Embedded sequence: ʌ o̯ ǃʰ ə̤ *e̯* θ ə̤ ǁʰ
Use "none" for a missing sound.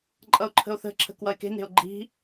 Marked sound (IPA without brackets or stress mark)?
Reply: o̯